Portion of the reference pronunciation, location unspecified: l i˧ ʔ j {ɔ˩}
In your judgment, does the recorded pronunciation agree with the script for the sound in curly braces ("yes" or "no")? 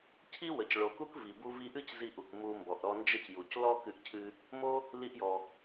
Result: yes